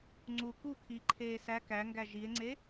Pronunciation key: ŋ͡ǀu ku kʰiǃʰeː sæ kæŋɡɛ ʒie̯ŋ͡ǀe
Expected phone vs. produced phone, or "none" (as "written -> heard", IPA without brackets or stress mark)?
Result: ɛ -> æ